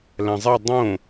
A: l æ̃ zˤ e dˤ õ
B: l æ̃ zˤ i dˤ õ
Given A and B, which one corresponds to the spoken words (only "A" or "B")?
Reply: A